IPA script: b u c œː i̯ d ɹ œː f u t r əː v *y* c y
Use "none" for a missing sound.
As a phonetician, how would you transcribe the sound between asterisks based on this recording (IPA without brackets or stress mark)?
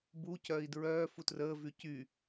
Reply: y